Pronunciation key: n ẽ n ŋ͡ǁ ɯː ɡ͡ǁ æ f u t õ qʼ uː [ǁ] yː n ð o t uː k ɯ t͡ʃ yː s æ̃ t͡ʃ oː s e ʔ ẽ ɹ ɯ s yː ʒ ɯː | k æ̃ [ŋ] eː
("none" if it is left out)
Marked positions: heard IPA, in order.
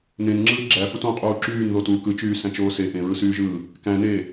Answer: ǁ, n

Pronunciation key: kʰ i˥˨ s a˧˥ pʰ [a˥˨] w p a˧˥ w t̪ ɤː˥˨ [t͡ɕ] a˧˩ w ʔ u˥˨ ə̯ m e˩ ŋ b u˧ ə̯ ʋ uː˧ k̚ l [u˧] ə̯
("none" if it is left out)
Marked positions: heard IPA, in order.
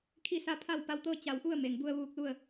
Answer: a˥˨, t͡ɕ, u˥˨

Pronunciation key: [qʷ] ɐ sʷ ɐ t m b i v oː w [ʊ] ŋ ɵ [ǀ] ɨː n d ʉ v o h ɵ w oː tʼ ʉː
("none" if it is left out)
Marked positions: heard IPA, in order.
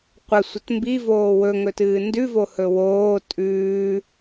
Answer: qʷ, ɵ, t

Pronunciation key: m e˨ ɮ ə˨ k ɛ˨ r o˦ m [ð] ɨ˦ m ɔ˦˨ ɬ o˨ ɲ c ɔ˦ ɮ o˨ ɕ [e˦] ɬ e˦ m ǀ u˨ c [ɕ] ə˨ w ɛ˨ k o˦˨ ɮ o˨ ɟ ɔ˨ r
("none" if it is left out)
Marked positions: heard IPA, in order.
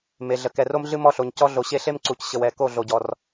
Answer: ɮ, e˦, ɕ

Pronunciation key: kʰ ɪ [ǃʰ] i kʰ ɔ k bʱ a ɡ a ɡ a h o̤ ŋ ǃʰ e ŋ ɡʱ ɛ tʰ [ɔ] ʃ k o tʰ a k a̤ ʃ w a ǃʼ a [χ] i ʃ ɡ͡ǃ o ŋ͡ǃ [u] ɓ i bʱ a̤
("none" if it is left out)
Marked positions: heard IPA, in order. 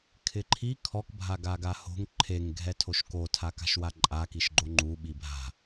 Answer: ǃʰ, o, k, u

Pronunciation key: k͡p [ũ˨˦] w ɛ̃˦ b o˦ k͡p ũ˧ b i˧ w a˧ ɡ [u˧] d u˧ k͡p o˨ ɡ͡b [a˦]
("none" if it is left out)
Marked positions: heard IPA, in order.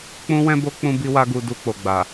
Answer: ũ˦, u˧, a˨

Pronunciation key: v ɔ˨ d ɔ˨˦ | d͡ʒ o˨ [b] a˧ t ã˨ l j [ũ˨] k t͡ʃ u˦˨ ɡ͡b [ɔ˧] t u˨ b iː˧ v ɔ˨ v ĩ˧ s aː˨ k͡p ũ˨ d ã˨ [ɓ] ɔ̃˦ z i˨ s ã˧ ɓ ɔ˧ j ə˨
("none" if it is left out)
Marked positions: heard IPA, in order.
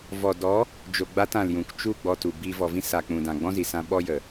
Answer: ɡ͡b, ũ˨, ɔ˧, ɡ͡b

